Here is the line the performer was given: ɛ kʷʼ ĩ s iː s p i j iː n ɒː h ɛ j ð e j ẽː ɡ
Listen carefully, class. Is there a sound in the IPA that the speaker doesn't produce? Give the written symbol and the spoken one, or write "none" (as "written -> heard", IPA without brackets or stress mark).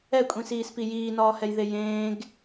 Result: none